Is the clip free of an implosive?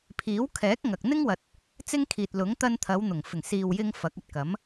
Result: yes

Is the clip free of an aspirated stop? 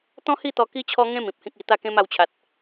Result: no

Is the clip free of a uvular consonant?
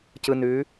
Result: yes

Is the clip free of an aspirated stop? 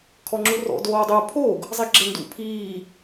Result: no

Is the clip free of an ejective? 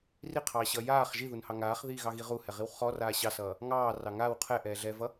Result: yes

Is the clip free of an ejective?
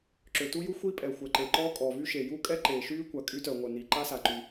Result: no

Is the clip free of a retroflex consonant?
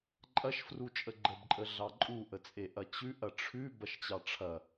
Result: no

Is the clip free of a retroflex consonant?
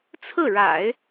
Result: no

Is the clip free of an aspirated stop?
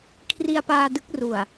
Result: no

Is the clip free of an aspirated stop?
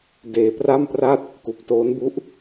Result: yes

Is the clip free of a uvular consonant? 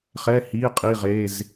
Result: no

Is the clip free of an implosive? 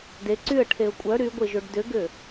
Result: yes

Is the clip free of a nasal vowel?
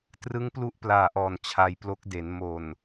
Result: yes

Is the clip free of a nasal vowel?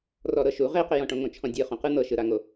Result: no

